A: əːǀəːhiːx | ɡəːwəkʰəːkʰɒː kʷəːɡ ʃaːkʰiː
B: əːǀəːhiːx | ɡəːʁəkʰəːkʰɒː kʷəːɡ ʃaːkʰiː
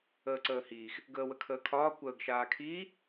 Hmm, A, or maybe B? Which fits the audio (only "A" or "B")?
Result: A